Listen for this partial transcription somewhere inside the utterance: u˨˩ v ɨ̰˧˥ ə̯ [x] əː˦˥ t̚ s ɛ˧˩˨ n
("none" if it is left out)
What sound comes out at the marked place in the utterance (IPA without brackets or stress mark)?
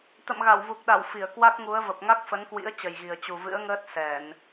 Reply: ŋ